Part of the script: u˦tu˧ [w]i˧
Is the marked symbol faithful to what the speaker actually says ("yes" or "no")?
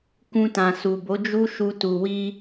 yes